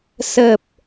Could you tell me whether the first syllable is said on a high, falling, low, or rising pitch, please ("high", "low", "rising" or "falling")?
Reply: low